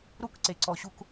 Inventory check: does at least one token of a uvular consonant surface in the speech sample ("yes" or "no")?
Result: no